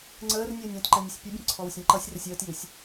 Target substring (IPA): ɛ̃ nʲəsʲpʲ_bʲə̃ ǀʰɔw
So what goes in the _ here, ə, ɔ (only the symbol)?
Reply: ə